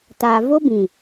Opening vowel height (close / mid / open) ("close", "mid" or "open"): open